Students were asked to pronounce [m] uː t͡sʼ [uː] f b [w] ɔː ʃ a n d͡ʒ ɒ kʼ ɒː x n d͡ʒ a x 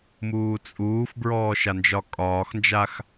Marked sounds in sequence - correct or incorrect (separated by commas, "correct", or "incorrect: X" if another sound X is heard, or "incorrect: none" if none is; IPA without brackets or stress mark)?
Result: correct, correct, incorrect: ɹ